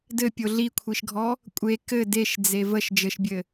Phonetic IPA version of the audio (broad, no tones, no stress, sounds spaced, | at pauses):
d ɘ pʲ o ɮ i kʷʰ i ʃ ɡʱ ɔ | kʷʼ e k ɘ d e ʃ d͡z e v ə ʃ d͡ʒ ɘ ʃ bʲ ɘ